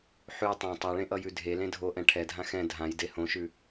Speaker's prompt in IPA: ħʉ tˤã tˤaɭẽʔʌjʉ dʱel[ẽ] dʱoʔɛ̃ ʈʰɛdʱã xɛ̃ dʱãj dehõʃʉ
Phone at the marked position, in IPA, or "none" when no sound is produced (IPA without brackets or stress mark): ẽ